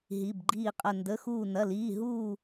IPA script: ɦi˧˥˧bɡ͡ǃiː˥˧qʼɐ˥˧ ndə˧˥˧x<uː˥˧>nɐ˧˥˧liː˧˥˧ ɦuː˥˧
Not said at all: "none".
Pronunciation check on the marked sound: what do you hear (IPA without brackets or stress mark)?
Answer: uː˥˧